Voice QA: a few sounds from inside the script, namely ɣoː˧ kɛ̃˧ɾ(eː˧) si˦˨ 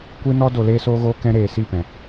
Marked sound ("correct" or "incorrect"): incorrect